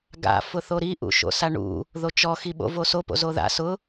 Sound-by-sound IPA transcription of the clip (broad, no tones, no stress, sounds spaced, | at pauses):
ɡ a̰ f ʊ θ o ɾ i ʔ ṵ ʃ o̰ s a ɳ ṵ | ð o t͡ʃ ɔ x i ɓ o̰ v o s o p o̰ z o ð a̰ s ʊ